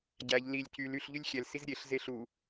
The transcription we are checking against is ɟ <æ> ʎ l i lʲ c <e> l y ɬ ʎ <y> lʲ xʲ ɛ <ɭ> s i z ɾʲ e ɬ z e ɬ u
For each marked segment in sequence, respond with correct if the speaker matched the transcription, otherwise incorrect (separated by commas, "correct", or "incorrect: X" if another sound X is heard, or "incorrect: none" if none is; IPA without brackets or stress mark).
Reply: correct, incorrect: y, correct, incorrect: l